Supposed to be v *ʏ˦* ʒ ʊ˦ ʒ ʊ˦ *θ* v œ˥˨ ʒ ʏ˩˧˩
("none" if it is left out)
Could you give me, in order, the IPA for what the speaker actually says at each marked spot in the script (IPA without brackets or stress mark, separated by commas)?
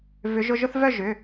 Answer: ʏ˨˦, θ